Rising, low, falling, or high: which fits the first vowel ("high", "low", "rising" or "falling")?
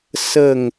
falling